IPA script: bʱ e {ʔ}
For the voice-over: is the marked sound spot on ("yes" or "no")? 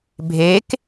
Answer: no